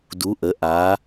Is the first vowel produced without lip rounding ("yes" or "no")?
no